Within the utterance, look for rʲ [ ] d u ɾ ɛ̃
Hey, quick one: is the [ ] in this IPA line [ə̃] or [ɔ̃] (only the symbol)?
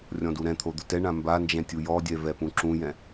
ɔ̃